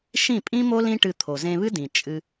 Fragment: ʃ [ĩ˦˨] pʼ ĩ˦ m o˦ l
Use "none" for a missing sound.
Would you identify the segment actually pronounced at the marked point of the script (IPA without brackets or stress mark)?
ĩ˦˨